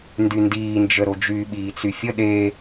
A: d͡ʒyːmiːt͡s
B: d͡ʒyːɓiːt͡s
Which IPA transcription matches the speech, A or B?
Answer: B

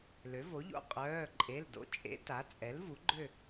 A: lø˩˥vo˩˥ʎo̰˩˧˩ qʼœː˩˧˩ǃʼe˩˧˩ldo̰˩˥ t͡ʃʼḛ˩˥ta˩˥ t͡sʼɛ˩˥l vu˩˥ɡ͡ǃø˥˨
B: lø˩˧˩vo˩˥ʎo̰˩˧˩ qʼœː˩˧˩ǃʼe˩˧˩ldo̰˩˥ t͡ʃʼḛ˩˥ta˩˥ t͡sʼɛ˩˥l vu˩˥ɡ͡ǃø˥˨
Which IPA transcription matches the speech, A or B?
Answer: A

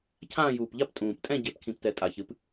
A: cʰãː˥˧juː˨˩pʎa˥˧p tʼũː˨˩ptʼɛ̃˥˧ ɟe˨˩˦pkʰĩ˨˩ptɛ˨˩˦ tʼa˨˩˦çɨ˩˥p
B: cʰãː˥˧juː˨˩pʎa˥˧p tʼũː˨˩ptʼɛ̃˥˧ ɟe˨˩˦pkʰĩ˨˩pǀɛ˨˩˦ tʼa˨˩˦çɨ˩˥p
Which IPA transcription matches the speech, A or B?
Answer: A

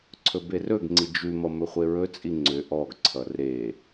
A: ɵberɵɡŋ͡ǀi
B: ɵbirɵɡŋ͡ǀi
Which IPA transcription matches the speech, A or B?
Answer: A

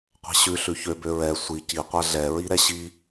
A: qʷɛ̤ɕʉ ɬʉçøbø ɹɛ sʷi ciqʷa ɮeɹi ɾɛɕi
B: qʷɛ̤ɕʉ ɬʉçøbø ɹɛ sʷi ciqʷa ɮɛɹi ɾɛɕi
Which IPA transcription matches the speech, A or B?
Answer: B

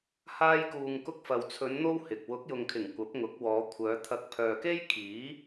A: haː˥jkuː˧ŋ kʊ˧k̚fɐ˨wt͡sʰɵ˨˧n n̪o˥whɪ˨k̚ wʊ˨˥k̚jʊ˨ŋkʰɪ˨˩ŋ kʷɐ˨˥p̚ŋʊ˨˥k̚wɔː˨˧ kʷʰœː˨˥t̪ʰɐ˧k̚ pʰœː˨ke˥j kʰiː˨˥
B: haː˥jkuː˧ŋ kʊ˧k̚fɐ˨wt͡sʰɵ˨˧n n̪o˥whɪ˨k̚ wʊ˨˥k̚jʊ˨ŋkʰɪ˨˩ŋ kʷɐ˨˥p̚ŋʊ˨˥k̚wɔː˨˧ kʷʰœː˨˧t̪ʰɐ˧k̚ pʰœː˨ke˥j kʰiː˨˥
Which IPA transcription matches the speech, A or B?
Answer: B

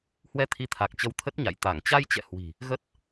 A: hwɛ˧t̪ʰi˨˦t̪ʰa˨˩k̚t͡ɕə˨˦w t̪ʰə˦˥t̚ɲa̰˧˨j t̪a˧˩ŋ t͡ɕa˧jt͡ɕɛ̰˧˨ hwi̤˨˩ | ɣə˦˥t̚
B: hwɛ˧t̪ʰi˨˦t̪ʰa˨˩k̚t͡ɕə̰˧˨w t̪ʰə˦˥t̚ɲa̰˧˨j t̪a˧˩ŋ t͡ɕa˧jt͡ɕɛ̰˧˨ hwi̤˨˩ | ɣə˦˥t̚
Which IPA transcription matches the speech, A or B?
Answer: A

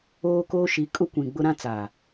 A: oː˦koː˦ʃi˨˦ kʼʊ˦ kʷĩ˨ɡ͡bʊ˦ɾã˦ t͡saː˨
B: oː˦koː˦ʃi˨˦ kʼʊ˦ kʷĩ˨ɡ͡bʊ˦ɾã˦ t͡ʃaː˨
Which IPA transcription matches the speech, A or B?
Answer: A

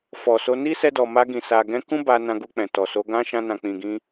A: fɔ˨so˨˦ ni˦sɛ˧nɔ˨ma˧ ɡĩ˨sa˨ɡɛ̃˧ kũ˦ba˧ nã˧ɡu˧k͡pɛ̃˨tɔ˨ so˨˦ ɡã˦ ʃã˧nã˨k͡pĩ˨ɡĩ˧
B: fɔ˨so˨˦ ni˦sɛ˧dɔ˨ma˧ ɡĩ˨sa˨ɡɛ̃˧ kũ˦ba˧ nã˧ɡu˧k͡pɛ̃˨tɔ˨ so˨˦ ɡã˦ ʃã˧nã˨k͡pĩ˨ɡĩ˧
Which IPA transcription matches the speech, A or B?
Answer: B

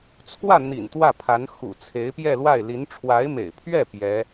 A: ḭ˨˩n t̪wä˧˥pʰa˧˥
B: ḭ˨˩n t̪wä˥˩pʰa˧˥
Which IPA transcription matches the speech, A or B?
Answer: B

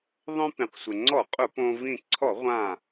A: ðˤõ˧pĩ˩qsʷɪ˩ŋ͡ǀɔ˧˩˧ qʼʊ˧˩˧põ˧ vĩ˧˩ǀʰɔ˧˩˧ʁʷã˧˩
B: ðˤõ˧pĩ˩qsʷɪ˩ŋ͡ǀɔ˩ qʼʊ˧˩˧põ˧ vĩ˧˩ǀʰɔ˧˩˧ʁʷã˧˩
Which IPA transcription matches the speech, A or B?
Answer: A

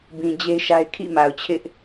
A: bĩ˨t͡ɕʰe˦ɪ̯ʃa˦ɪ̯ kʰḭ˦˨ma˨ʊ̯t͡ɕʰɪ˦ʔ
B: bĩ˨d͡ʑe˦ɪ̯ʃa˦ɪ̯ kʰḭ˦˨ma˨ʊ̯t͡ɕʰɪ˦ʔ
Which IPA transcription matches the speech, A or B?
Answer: B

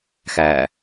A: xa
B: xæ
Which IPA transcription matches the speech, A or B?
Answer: B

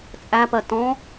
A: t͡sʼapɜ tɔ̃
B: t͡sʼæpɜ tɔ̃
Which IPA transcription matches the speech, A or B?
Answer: B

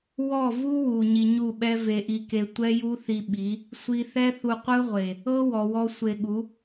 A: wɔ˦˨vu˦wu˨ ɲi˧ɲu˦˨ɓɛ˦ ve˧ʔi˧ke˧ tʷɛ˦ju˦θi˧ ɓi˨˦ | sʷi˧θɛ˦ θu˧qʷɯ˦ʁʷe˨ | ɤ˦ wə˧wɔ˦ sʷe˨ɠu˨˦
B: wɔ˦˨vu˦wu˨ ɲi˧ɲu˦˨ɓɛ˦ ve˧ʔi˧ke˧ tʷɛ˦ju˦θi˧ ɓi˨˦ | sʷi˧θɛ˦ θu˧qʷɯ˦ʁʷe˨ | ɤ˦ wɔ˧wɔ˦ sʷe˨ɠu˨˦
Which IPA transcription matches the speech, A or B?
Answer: B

